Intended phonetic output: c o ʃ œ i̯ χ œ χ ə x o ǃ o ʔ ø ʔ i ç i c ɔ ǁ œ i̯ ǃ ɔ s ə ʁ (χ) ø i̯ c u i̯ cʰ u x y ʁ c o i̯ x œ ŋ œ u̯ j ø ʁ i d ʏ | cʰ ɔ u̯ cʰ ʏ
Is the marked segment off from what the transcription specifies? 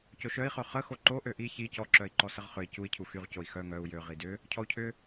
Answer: no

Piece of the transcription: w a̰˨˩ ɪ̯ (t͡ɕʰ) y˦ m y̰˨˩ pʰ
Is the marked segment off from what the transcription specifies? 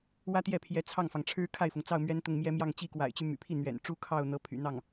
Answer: yes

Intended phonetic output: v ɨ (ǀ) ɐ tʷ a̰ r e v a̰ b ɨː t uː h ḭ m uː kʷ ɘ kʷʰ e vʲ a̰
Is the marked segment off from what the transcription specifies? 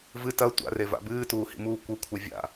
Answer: yes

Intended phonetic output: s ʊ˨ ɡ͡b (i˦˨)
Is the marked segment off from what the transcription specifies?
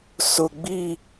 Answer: no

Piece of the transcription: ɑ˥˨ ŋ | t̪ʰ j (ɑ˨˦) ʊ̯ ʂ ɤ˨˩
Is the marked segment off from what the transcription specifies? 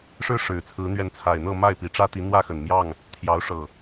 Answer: no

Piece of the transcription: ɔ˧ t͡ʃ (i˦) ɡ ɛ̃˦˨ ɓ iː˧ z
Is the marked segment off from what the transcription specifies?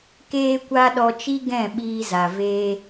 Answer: no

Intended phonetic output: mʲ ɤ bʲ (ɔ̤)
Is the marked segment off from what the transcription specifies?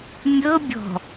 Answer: no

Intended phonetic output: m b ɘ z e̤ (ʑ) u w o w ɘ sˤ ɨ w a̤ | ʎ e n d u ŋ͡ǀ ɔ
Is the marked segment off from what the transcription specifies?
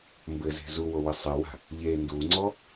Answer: yes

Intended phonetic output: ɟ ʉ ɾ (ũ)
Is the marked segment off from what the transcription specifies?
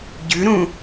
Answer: no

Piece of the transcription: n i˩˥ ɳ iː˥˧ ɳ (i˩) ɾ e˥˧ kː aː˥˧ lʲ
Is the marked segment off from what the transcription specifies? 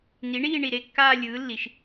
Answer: no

